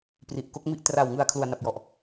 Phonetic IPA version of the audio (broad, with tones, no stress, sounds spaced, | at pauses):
p r i˨˩ ʔ k o˦˥ k̚ m i˥˩ ʔ t r a˨˩ w ŋ ɯ˨˩ a̯ kʰ l u˨˩ a̯ n a˨˩ p̚ j ɔ˨˩ ʔ